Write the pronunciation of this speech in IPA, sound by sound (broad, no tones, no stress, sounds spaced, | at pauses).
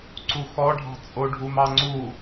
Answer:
ǀ u x ɔ ɖʱ ɑ̤ t͡sʼ o ɖʱ u m ɑ ŋ͡ǀ u